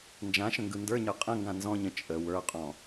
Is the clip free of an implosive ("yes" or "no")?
yes